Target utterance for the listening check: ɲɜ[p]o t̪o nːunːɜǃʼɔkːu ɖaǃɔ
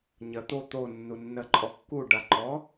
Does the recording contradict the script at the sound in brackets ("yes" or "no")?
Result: yes